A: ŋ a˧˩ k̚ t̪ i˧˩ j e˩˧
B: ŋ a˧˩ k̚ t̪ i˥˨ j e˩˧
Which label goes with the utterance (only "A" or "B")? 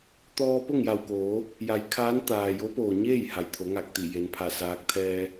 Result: A